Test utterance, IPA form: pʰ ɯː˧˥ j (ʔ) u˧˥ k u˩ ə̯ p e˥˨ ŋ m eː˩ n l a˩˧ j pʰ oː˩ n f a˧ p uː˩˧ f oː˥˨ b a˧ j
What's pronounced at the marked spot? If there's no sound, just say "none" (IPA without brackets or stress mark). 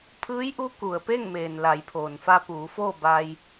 ʔ